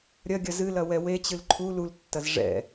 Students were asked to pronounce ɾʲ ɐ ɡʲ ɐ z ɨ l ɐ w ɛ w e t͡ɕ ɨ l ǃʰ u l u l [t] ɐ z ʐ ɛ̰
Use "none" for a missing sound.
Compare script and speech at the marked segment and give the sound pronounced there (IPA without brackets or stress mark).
tː